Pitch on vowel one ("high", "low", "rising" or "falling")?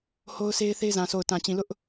high